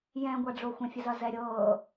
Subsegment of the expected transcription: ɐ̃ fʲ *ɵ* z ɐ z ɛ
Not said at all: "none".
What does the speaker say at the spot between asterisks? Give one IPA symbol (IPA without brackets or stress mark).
ə